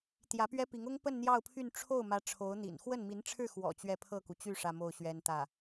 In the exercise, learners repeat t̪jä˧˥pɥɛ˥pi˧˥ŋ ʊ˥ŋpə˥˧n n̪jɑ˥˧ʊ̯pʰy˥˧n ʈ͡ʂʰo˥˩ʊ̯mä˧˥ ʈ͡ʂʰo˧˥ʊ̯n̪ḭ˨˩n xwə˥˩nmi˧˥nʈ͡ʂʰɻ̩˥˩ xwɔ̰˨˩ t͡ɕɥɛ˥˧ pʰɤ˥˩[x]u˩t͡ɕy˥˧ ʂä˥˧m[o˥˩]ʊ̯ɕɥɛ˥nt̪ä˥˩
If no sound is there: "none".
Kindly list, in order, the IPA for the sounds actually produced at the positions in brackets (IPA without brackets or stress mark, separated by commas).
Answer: k, o˥˩